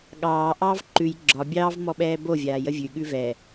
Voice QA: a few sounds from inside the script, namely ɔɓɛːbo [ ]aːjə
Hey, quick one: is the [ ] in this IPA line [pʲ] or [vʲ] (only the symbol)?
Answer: vʲ